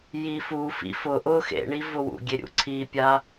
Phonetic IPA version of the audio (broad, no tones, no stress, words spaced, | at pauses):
jifufḭ fʊ ʔʊ xḛɳi vʊwṵɡʲe ɾʲṵǀʰipʲa